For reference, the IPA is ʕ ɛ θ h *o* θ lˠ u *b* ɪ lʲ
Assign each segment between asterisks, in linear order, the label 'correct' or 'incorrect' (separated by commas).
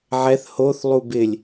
correct, correct